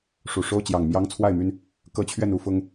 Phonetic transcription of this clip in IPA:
ʂu˨˩ʂo˦ʊ̯ t͡ɕjɑ˨˩ŋmjɑ˦ŋt͡sʰwa˥˨ɪ̯my˥˨n | kɤ˦t͡ɕʰɥɛ˥˨n u˥˨ fʊ˦ŋ

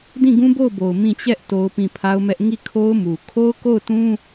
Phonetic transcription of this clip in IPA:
dĩ˦˨ɡũ˦bo˦˨ʊ̯bo˨ʊ̯ mĩ˦˨ t͡ɕɛ˦ʔ to˦ʊ̯pĩ˦˨ pʰa˦ʊ̯mɛ˦ʔ ŋi˦˨kʰo˦ʊ̯mu˨ kʰo˦ʊ̯ko˦˨ʊ̯tũ˦

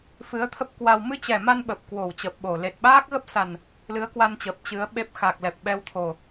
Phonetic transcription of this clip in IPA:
fɨ˨˦ə̯t̪ʰə˦˥p̚kwa˧w mɨ˧t͡ɕɛ˨˩ma˧n ɓə˨˩p̚kwo˧˩w t͡ɕəː˨˩p̚ɓo˧˩ le˨˩t̚ɓaː˦˥k̚ɣə˦˥p̚ sa˨˩n | lɨ˨˦ə̯kwa˧nt͡ɕəː˨˩p̚ t͡ɕɨ˨˦ə̯ɓe˦˥p̚ xa˨˩k̚lɛ˨˩p̚ ɓɛ˧wt̪ʰo˨˩

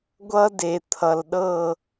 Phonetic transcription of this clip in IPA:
ɡʷʌ˥de˨t̪ʰʌ˨lɗɤ˥˨

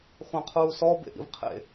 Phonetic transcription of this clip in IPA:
χʷãqʰuːsɔ bḛʔḭvqʰḛ

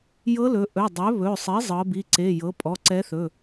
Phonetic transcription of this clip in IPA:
jɤ˧˥lɵ˩˧ ʔɵ˩˧˩ dˤɵ˩˥βɵ˩˧˩ sˤi˩˥ zˤɤ˩˧bi˩˧˩ǀe˩˧˩jɤ˩˥ pʼɔ˩˧˩ǀɛ˧˥θɵ˩˧˩

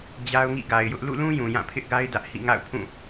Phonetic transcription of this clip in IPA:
d͡ʑa˦ʊ̯ŋḭ˦˨ɡa˨ɪ̯jʊ˦ʔ lṵ˦˨lũ˦ jũ˨jã˦˨ pʰɪ˦ʔɡa˦ɪ̯ dä˦ʔ hḭ˦˨ŋa̰˦˨ʊ̯pʰũ˦˨

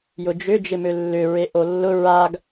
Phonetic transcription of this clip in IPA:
jʊd͡ʒʏ d͡ʒɪmølːʏ ɹeʔolːʊ ɹaɡ

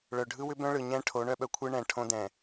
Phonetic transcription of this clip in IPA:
ɭœ˨ɖʱɯ˦wʏ˦bœ̃˦ ɭɯ˨ ɲɛ̃˦ʈʰo˨˦ ɳœ˦ɓœ˨kʷʰɯ˦ ɳɛ̃˨ ʈʰõ˦dɛ̃˨

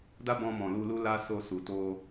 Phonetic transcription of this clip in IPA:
da˦bɔ̃˧mɔ̃˨ lu˧lu˦la˦ so˧su˨ to˧

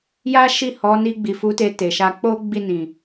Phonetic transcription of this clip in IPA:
ja˦ʃi˦˨hɔ˨˦ ni˧ɡ͡bi˨fu˨˦te˧ te˨ʃa˧ k͡po˦ ɡ͡bi˦˨nĩ˨

